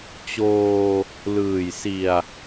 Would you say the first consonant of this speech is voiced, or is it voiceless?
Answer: voiceless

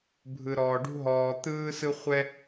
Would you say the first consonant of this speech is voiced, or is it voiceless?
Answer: voiced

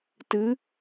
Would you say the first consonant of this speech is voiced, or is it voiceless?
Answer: voiceless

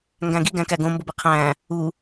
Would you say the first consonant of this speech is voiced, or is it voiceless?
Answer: voiced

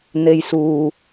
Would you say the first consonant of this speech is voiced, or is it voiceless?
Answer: voiced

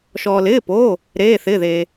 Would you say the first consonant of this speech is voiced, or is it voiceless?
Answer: voiceless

